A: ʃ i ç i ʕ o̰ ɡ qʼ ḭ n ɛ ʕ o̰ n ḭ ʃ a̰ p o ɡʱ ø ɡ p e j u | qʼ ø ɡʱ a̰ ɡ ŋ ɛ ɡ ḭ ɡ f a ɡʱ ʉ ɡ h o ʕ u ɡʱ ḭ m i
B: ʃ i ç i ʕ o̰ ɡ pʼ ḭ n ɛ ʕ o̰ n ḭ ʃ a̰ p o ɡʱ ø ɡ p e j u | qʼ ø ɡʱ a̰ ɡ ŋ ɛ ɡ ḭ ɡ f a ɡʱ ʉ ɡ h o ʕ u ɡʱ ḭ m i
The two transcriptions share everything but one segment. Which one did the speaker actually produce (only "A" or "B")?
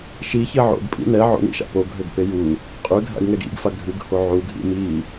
B